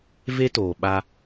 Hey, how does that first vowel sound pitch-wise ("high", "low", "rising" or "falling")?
high